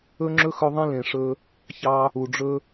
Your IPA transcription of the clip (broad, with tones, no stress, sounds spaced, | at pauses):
ɵ˦ ŋ͡ǁ ɵ˦ x ɵ˧ ðˤ ẽ˦ l ẽ˨ ʂ ɵ˧ | ç ɑ˧ | u˨ ɖ͡ʐ ɵ˦